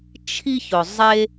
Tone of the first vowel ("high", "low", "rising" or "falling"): high